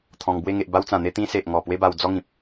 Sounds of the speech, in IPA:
t̪ʰɔ̃˧ŋbwe˥˧ ŋe˨ʔba˧wt͡sã˨˩ n̪e˧t̪ĩ˧se˨ʔŋɔ˨˩ pwe˦ba˧w d͡zɔ˦ŋĩ˨p̚

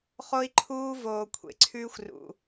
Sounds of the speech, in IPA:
χo˦i̯ǃʰuː˦voː˨ kʷʰḛ˨ǀʰʉː˦xʷrṵ˨

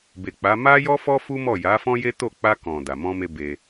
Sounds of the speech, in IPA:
be˨k͡pa˨˦ ma˦jɔ˦fɔ˦ fu˦mɔ˦˨ ja˨˦fɔ̃˦je˦to˦˨ k͡pa˧kɔ̃˨ da˨mɔ̃˧me˧ be˧

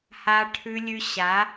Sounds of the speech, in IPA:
ha˧ʈʰʉ˧lʲʉ˧ɕa˨˦

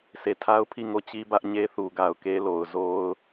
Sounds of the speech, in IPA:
se˨tʰa˦ʊ̯ pʰi˦˨ŋo˦˨t͡ɕi˦ bä˦ʔɲe˦θu˨ ɡa˨ʊ̯ke˦ lo˨ʊ̯zo˦ʊ̯

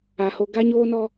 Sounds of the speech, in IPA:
a˨ho˦ ɡa˦ɲoː˦ nɔ˦

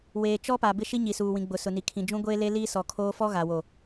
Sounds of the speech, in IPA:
weː˨t͡ʃɔ˦pa˨ bɪ˦ʃi˦ ɲi˨suː˨wĩ˨ɡ͡bʊ˨ sʊ˨ni˨kʰĩ˨ d͡ʒũ˦ɡʷeː˦le˦liː˦ sɔ˨kʰoː˦ fɔ˦ɣa˨wo˨

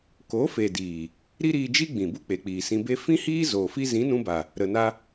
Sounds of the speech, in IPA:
ko˨˦fe˨ diː˨ | ɾi˦ɾiː˧d͡ʒi˦ ɡ͡bĩ˨ bu˦k͡pe˨k͡piː˨ sĩ˧be˦ fĩ˦hiː˦ zoː˨fi˦ zĩ˨˦nũ˧ba˨ | ɾə˧na˦

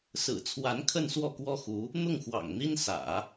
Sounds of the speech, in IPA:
sɹ̩˨˩t͡sʰwa˧˥n kʰə˥˧nswɔ˥˩kwɔ˥xu˧˥ | n̪ʊ˥˩ŋxwɑ̰˨˩ŋn̪i˥nsä̰˨˩˦

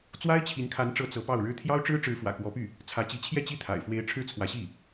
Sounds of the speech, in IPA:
t͡swa˥ɪ̯t͡ɕʰi˧˥nkʰa˧˥nʈ͡ʂɤ˧˥ t͡sɤ˧˥ pɑ˥˩ʊ̯ɻɻ̩˥ t̪ʰjɑ˥ʊ̯ʈ͡ʂɻ̩˥ ʈ͡ʂɻ̩˧˥fwä̰˨˩kwɔ˧˥py˥˩ | t͡sʰä˧˥t͡ɕi˧˥ t͡ɕʰjɛ˥˧ t͡ɕi˥˩t̪ʰa̰˨˩ɪ̯fwe˧˥ɪ̯ ʈ͡ʂʰɻ̩˥˩t͡sʰwä˧˥ɕi˥˩

